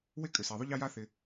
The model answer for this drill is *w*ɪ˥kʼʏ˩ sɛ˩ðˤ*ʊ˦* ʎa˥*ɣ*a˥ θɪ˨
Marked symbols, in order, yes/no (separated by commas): yes, yes, no